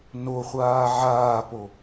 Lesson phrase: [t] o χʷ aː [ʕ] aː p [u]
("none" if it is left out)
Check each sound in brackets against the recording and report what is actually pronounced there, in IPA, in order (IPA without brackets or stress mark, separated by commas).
n, ʕ, o